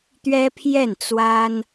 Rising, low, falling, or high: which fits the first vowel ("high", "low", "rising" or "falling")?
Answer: high